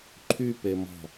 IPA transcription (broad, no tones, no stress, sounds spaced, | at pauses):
ǃʰ y p e m ɔ̤